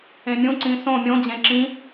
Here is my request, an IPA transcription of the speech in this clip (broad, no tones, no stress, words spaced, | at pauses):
ẽmʲũǀĩ sõ mʲõd͡ʑẽ ǁĩ